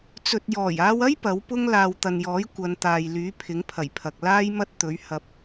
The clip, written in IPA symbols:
t͡sɵ˨t̚jɔː˨˩jaː˧wɐ˥j pɐ˨˥wpʊ˥ŋ laː˨wt̪ɐ˨njɔː˨˥j kʷɐ˨˧nt̪aː˨jlyː˨˥ pʰɪ˨˥ŋpʰɐ˨˩jpʰɐ˨k̚ laː˥j mɐ˥t̚ t̪ɵ˨˥ɥhɐ˧p̚

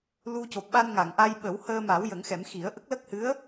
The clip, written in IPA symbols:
lu˧ co˨˩p̚ɓa˧nŋa˨˩˨ŋʔa˧j ɓə˨˩˦w həː˧ma˨˩˦w jə˨˩˦ŋxɛ˨˩˦mxi˨˩˦ə̯ ʔə˦˥k̚lə˦˥k̚hɨ˧˥ə̯

